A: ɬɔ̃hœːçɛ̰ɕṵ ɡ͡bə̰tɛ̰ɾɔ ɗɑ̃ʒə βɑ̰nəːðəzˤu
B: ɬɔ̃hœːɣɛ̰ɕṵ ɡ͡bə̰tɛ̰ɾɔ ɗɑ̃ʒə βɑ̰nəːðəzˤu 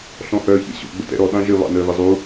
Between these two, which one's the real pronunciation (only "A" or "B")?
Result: A